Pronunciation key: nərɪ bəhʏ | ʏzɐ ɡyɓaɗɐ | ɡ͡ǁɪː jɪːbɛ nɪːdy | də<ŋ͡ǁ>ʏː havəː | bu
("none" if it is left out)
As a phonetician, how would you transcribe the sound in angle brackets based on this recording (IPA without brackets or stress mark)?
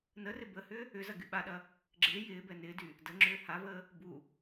ŋ͡ǁ